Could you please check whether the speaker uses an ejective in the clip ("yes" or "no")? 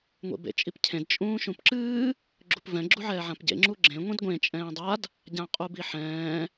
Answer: yes